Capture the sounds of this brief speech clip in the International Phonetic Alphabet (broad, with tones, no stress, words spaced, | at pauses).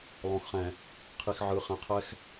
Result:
lˠõ˨xχɛ̃˨ | qʰi˨xʕɯ˨χɛ̃˨qʰɛ˦x